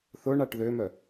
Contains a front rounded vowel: yes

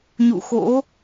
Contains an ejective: no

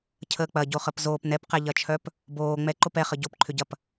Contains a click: yes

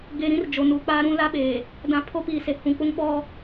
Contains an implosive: yes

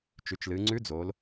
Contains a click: yes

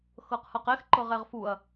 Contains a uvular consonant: yes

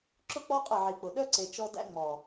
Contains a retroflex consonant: no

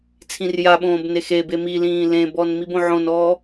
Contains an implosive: yes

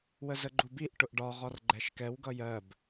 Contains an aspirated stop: no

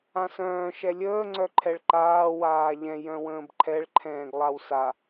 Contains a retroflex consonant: yes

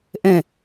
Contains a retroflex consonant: no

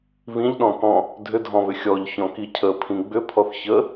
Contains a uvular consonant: no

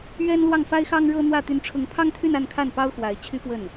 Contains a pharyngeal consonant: no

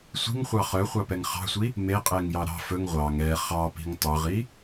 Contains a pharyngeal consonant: no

